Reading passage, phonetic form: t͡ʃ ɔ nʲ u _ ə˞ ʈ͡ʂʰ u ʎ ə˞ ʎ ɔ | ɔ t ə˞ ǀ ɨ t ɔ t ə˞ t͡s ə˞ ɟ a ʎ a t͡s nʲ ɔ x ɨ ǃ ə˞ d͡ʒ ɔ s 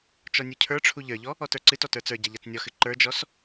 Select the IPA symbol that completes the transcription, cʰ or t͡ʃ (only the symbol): cʰ